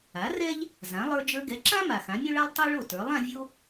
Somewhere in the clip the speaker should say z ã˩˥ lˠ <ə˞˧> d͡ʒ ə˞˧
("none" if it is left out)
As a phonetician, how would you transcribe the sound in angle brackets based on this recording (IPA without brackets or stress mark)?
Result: ə˞˧